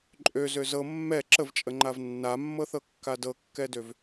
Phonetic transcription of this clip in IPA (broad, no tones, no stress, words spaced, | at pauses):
ǃʼøzø zɤ mːɛ ǁəvt͡ʃʼəŋ͡ǃav nːamːɤθɤkːa dɤkːɛdøv